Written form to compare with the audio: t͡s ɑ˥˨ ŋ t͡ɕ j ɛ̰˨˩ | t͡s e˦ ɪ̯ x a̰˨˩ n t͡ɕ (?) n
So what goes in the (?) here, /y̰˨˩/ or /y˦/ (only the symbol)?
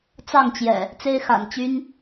y˦